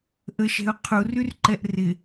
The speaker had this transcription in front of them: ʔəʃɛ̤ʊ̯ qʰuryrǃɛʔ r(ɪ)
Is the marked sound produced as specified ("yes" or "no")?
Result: yes